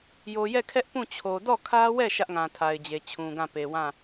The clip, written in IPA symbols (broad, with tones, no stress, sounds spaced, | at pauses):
j o˨ j ɛ˦˨ kʰ ɛ˦ ʔ p ũ˦˨ t͡ɕʰ o˨ d ɔ˦˨ kʰ ä˦ w ɛ˦˨ ʃ ä˦ ʔ ŋ ã˨ tʰ a˨ ɪ̯ d͡ʑ e˨ t͡ɕʰ ũ˨ ɡ ã˦˨ p e˨ w ã˦˨